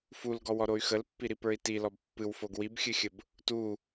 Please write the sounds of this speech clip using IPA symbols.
f u l ɡ ɔ w ɔ ɾ o y̯ x ə l pː i ɾ i p ə˞ i̯ t i l ɔ b pː ɨ w f o ɡ w i b xʲ ɨ xʲ ə b | t u

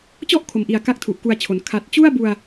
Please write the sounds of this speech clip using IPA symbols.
t͡ɕ ɔ˥˩ ʔ kʰ o˨˩ m ʔ i˨˩ a̯ k a˦˥ k̚ tʰ u˨˩ ʔ k u˧ a̯ t͡ɕʰ o˩˦ n kʰ a˨˩ t̚ t͡ɕ u˥˩ a̯ b u˧ a̯

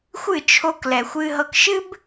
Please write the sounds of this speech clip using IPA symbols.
xʷ ɨ˦˨ t͡ʃʰ o˧ k l ɛ˨ xʷ ɨ˧ ɦ ɤ˧ k ʃ ɨ˦ b

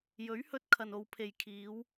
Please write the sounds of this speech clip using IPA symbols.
j ɵ˨˥ ɥ h ɵ˧ t̚ kʰ ɐ˨ n o˨˧ w pʰ e˨ j kʰ iː˨˧ w

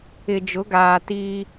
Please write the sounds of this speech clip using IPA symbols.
ɪ˨ d͡ʒ ʊ˨˦ ɡ aː˨ t iː˦

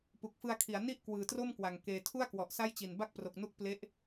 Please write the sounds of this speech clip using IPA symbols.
p u˨˩ k̚ f ɯ˧ a̯ kʰ i˩˦ a̯ n i˥˩ ʔ k w ɯː˨˩ t r o˥˩ m k w a˨˩ ŋ k eː˧ tʰ u˥˩ a̯ k w ɔ˨˩ ʔ s a˥˩ j t͡ɕ i˨˩ n b a˥˩ k̚ p r o˨˩ k̚ n u˥˩ k̚ p l e˦˥ ʔ

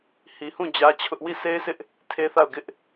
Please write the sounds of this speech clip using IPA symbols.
h i˨ h ũ˦˨ d͡ʑ ä˦ t͡ɕʰ ʊ˦ ʔ w i˦˨ sʰ e˦ ɪ̯ s ɪ˦ ʔ | tʰ e˦ θ a˦˨ ʊ̯ ɡ ɪ˦ ʔ

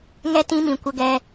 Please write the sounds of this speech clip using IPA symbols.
ŋ ɛ˧ t ĩ˦ m ĩ˨ kʷ ə˧ ɡ ɛ˧

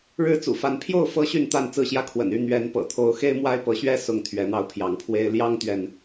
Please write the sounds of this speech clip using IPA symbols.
ɻ ɻ̩˦ t͡s ṵ˨˩ f a˨˦ n pʰ j o˥˨ ʊ̯ f ɤ˦ ɕ y˥˨ n t̪ a˥˨ n t͡s ɹ̩˥˨ ɕ j ä˦ kʰ w ə̰˨˩ n y˥˨ n̪ ɥ ɛ˨˦ n p ɤ̰˨˩ t̪ʰ o˨˦ ʊ̯ x e˦ ɪ̯ m w a˦ ɪ̯ p ɤ˨˦ ɕ ɥ ɛ˦ s ʊ˥˨ ŋ t̪ʰ ɥ ɛ˨˦ n̪ ɑ˧ ʊ̯ pʰ j ɑ˨˦ ŋ pʰ w e˦ ɪ̯ l j ɑ˦ ŋ t̪ ɥ ɛ˨ n

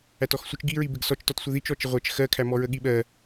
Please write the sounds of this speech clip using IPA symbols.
æ t ɔ x sʷ ə t͡ʃ ɡ i ɹ i b ɪ ɡ s ɔ t͡ʃ t ɔ t sʷ ə ð i t͡ʃ ɔ t͡ʃ ɪ ʁʷ ɜ t͡ʃ x ɜ kʰ æ m ɔ ɹ ə ɠ i ɓ ɜ

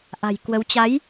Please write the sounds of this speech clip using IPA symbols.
ʔ a̤˨˩ j k w ə˨˦ w t͡ɕ a˨˦ j

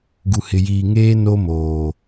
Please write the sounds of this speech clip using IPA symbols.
ɡ u˨ h ɪ˨ j iː˨ ŋ eː˦ n o˦ m oː˨

